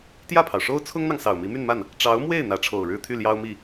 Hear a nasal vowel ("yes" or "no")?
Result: no